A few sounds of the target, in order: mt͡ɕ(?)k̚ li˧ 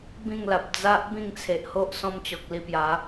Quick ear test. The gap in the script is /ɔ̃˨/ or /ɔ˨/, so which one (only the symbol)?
ɔ˨